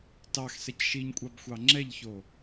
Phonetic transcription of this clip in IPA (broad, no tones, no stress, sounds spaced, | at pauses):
t ɑ x s ɛ c ʃ i ɲ kʷʼ ɑ b xʷ ɑ ŋ͡ǁ ɛ ʎ ç o